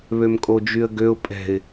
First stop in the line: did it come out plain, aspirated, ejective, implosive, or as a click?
ejective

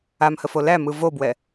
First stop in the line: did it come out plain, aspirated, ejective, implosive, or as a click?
plain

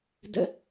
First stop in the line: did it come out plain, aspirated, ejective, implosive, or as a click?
plain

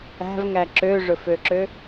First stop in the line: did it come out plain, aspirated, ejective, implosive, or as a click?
click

